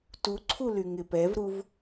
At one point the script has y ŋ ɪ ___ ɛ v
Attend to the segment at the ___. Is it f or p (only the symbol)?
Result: p